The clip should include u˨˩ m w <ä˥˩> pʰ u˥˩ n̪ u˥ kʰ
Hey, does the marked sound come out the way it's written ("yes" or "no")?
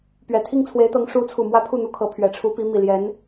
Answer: no